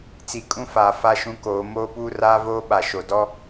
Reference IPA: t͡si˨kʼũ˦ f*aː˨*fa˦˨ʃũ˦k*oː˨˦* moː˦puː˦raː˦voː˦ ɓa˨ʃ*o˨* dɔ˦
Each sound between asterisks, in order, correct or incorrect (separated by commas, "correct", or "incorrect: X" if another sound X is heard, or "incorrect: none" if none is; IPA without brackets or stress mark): correct, correct, correct